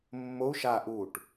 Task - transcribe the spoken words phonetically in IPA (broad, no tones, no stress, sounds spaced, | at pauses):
mː o u̯ ʃ a ʔ u ʈ